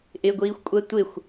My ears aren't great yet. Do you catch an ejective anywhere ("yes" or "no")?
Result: yes